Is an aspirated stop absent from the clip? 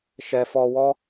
yes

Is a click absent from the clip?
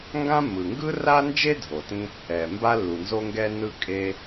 yes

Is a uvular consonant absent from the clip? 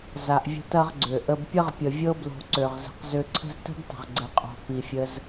no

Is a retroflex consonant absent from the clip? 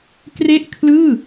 yes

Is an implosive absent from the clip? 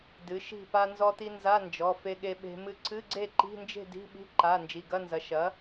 no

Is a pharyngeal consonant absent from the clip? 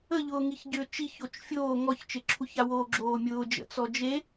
yes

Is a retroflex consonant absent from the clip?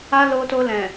yes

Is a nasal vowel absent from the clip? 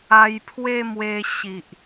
yes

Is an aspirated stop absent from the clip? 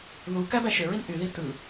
yes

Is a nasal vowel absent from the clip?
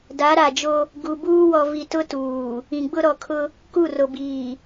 no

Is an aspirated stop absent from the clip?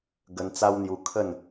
no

